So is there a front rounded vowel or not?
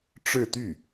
yes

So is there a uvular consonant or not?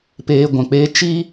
no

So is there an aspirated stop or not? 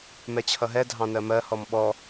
yes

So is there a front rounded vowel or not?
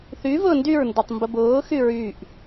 yes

